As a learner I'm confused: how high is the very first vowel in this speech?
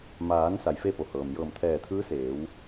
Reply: low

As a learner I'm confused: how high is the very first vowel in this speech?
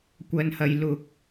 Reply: low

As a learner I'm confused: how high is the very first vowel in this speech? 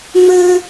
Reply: mid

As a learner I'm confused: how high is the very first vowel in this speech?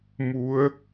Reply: high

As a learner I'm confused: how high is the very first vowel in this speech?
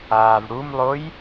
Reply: low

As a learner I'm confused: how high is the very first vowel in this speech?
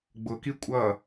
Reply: high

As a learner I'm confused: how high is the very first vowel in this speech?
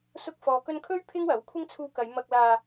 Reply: high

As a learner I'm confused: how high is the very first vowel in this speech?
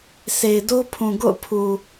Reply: mid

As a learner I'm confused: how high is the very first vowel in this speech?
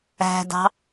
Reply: low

